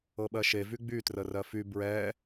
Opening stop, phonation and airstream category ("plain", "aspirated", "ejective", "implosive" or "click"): implosive